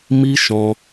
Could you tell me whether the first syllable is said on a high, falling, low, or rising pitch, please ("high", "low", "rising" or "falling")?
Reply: high